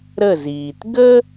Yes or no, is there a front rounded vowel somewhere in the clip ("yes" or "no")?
no